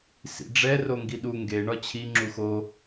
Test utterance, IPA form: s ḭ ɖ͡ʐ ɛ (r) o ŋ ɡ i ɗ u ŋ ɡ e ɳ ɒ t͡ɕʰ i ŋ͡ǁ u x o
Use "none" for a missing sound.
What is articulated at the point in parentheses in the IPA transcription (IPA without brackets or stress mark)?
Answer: r